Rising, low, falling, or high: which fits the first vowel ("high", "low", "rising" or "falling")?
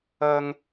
high